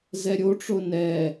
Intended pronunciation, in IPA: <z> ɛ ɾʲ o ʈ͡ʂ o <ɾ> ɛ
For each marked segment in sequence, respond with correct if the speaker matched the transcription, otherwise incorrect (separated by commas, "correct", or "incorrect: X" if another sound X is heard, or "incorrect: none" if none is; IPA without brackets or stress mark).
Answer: correct, incorrect: n